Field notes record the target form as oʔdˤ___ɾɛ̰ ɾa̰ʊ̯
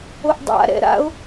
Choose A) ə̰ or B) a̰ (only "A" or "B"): B